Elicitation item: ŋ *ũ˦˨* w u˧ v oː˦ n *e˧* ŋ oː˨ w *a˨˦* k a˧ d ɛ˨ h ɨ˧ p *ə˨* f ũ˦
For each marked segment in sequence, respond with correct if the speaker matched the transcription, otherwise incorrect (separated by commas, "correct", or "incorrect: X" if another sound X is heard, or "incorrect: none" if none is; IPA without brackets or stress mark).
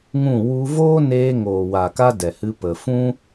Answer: correct, incorrect: eː˧, incorrect: a˨, correct